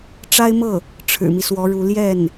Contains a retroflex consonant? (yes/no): yes